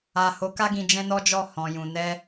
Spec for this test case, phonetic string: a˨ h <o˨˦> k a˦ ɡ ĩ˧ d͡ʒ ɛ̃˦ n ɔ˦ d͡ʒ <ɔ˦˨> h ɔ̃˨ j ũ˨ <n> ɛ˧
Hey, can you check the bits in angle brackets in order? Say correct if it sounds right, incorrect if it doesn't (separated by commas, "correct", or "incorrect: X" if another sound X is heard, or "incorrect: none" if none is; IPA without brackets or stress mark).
correct, correct, correct